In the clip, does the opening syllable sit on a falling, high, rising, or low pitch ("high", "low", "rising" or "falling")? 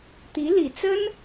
rising